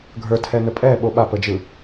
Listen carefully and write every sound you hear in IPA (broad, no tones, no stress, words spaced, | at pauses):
ɡʱə˞tʰɛnə pʼɛɓo ɓapəd͡ʒɯ